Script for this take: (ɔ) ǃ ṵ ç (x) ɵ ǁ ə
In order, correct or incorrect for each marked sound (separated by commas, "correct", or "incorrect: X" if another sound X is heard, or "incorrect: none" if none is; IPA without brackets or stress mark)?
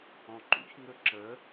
incorrect: ɔ̃, incorrect: ŋ